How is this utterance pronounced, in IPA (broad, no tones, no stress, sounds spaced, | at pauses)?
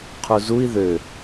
qʰ u z u i̯ ð ø